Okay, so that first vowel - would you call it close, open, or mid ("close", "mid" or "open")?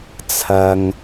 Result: open